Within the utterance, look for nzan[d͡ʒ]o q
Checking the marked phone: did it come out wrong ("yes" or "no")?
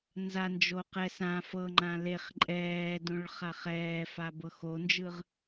no